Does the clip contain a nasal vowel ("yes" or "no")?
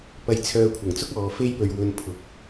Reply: no